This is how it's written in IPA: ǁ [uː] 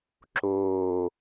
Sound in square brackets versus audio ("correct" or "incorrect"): incorrect